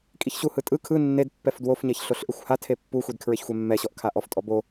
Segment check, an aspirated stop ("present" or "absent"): present